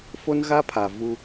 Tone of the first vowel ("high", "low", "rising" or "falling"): high